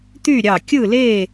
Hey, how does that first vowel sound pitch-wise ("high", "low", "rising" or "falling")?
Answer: falling